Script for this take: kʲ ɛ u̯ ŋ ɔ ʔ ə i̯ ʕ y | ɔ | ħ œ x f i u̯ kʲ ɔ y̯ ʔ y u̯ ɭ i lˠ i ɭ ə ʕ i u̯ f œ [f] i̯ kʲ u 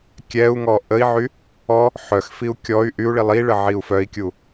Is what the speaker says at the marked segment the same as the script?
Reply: no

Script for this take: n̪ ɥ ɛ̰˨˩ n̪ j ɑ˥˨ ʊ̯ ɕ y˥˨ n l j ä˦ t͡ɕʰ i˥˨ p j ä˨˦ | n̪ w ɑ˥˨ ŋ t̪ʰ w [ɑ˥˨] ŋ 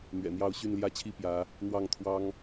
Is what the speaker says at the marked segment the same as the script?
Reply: no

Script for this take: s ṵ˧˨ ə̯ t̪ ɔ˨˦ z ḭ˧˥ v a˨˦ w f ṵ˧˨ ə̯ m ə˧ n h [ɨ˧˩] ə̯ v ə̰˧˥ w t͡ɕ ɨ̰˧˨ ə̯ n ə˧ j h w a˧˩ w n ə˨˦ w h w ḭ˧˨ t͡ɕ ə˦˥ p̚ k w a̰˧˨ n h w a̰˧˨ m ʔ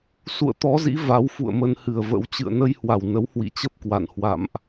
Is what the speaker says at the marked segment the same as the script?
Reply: yes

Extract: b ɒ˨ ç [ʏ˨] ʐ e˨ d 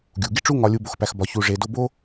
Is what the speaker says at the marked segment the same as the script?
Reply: no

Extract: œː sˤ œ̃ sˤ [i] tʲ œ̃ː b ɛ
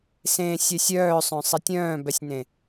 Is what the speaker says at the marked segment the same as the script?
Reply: yes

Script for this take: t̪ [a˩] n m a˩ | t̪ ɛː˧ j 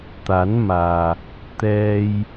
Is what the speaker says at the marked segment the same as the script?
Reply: no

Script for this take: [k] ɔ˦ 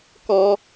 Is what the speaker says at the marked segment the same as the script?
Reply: yes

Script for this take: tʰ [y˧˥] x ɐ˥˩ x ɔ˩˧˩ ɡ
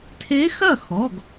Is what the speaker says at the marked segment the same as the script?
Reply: no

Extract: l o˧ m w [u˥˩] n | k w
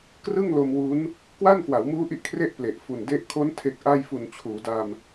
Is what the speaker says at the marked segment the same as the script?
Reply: no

